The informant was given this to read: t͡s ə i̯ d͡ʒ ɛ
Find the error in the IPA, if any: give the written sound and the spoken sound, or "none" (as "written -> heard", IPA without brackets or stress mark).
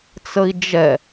none